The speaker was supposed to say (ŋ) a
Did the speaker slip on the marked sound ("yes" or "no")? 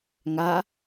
no